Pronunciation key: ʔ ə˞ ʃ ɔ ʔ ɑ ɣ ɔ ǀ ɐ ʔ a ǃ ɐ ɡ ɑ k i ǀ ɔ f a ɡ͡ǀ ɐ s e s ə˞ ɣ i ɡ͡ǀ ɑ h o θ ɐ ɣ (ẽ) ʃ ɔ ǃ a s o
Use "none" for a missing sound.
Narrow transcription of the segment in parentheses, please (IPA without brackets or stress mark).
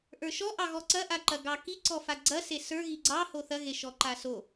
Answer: e